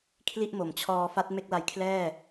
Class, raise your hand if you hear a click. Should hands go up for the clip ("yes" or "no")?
no